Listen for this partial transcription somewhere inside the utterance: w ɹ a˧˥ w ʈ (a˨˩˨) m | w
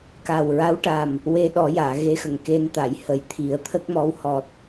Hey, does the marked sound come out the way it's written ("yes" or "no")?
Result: no